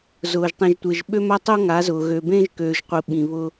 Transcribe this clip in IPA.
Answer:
z ʊː˨ ʒ tˤ ĩ˨ ʒ tʷ e˨ ʒ ɓ ø˦ m a˦ tˤ o˦ ŋ a˨˦ z ʊː˨ ɣ ø˨ b ẽ˦ ʒ k øː˨ ʒ qʷ i˨ ɓ ĩ˨ β ʊ˦

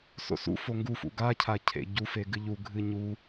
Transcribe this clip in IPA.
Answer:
s o̰ s ṵ f o ŋ ɡ u f ṵ ɡ a cʰ a cʰ ḛ ɟ u f e ɡ ɨ ʎ u ɡʱ ɨ ɲ u

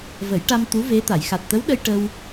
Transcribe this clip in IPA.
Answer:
v ə˨˩˦ j ʈ a˧ m t̪ u˧˥ v e˧˥ t̪ a˨˩˨ j x a˨˩ t̚ t̪ ə˧˥ w ɗ ə˧ j ʈ ə˧ w

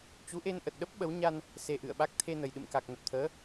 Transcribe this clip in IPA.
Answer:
t͡ɕ u˨˦ ʔ e˧ n ʔ ə˨˩ t̚ ɗ ə˦˥ p̚ ɓ ə˨˦ w ɲ a˧ n | s e˧ ʔ ɨ̰˧˨ ə̯ ɓ a˦˥ k̚ t̪ʰ e˧ n ə˨˩ j ɗ ɨ̰˧˨ m k a˨˩ k̚ n ə˨˩ p̚ t̪ʰ əː˨˦

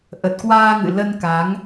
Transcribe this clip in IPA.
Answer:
ʔ ə˨˩ t̚ k w aː˧ ŋ ɨ̰˧˨ l ə˧ n k a˨˦ ŋ

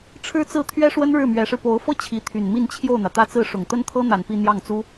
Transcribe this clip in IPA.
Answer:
ʈ͡ʂʰ ɻ̩˥ t͡s ɹ̩˥˩ t̪ʰ ɥ ɛ˥ ʂ w ə˥ n ɻ ɻ̩˥˩ m ɥ ɛ˧˥ ʂ ɻ̩˧ p o˧˥ ʊ̯ f ɤ˥ t͡ɕʰ i˧˥ t̪ʰ y˨˩ n m i˥˧ n t͡ɕʰ j o˥˩ ʊ̯ n̪ ä˩ t̪ ä˥˧ t͡s ɹ̩˥˩ ʂ ʊ˨˩ ŋ t̪ ə˥ n t̪ʰ ɤ˥ n̪ a˨˩ n p i˥˧ n̪ j ɑ˥˩ ŋ t͡s u˥

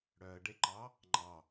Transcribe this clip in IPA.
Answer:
ɽ œ ə̯ ɖ e ǃ ɑ | ŋ͡ǃ ɑ

